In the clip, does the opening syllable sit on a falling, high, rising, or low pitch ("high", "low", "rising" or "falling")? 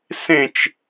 falling